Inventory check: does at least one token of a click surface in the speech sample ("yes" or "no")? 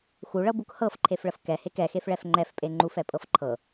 yes